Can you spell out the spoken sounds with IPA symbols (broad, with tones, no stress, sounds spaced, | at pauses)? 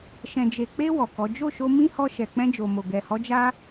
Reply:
ʃ ɛ̃˨ d͡ʒ e˨ k͡p e˧ w ɔ˨ k ɔ˨˦ d͡ʒ o˦˨ ʃ o˧ m ĩ˦ h ɔ˧ ʃ ɛ˨ k͡p ɛ̃˧ d͡ʒ o˨ m o˨ ɡ ɛ˨ h ɔ˨˦ d͡ʒ a˦